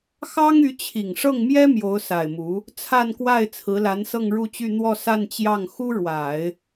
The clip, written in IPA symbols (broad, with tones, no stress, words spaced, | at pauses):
xɑ˥ŋy˧˥t͡ɕʰi˨˩ŋ ʂɤ˥˩ŋmjɛ˥ mjo˧˥ʊ̯sa˨˩ɪ̯mu˧˥ | t͡sʰa˥˧nkwa˥˩ɪ̯ t͡sʰɹ̩˧˥la˧˥n sɤ˥˧ŋɻu˥˧t͡ɕy˥˧ n̪wɔ˥˧ sa˥˧nt͡ɕjɑ˥˩ŋ xu˥ɻwa˨˩˦ɪ̯